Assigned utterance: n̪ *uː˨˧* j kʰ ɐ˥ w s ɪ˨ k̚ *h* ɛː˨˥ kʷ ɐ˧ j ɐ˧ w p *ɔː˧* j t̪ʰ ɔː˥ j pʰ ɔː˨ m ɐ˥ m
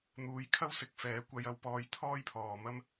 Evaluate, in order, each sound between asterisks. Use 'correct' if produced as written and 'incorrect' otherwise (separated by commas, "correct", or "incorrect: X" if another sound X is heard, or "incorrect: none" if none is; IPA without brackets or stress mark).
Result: correct, incorrect: f, correct